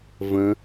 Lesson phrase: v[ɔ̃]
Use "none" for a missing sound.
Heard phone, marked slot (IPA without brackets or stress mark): ə̃